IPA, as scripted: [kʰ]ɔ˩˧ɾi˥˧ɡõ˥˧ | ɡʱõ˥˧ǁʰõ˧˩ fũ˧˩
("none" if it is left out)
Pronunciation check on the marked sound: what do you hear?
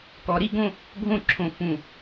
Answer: k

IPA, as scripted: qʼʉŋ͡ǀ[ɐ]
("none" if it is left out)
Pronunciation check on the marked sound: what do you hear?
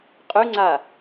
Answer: a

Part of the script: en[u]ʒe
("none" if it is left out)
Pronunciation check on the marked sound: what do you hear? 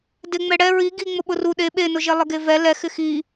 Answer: ʊ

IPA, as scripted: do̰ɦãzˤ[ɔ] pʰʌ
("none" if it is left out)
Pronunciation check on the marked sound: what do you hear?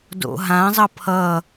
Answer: ʌ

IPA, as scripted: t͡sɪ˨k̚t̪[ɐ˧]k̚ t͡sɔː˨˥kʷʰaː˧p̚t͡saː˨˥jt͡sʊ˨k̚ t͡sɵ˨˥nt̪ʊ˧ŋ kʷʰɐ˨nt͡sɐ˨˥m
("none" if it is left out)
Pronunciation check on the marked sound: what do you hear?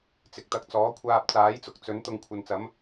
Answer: ɐ˧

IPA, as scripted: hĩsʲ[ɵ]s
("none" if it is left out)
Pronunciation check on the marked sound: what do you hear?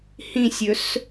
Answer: ɵ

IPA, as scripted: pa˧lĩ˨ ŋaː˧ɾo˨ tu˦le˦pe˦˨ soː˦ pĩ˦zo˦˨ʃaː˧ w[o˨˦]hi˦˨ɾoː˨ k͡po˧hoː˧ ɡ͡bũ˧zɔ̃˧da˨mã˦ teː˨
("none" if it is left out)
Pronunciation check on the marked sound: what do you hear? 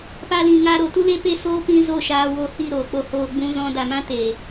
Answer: o˧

